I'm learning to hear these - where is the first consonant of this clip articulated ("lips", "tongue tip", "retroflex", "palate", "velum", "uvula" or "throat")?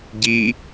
palate